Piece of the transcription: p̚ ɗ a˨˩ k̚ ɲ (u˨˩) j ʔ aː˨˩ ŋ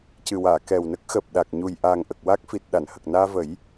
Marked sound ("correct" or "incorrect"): correct